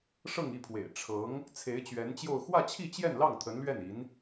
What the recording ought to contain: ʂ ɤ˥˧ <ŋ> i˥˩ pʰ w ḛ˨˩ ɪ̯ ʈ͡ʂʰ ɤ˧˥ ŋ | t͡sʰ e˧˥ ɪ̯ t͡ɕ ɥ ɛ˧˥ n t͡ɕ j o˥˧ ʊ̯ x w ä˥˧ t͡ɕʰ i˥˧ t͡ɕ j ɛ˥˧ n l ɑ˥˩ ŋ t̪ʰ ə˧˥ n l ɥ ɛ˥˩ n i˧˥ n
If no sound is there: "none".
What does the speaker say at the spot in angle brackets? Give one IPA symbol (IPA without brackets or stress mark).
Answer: ŋ